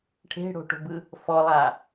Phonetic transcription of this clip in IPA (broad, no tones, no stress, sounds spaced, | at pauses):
ʈʰ e̤ ɽ o̤ ʈ o̤ b ɯ | f ɔ lˠ a